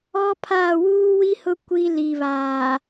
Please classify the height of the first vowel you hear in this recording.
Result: mid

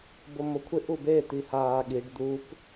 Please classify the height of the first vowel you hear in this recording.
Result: mid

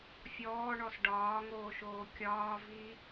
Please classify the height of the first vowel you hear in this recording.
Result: mid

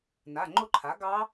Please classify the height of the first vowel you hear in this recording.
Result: low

